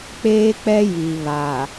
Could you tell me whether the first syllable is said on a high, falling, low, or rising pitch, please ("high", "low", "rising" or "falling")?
high